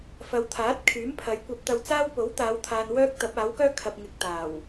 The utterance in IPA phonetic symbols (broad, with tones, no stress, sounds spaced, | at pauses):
f ɐ˨˧ w t̪ʰ aː˨˥ t̚ kʰ yː˨˥ m pʰ ɐ˨˧ j kʷ ɐ˧ p̚ t̪ ɐ˧ w t͡s aː˥ w p o˨˥ w t̪ aː˨˧ w t̪ʰ aː˨ n w œː˥ k̚ t̪ ɐ˨˥ p̚ aː˨˥ w k œː˥ kʰ ɐ˨ p̚ ŋ ɪ˨ k̚ t̪ aː˨˩ w